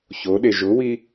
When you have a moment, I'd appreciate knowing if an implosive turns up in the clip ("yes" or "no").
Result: yes